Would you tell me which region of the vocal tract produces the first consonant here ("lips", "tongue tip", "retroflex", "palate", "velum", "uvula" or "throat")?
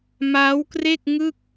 lips